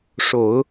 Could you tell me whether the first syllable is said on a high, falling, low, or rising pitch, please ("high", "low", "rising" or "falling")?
low